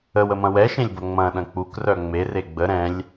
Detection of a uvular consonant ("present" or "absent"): absent